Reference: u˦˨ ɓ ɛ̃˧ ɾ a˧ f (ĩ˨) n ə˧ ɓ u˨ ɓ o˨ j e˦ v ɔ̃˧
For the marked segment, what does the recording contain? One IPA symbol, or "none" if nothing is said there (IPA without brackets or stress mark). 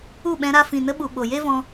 ĩ˨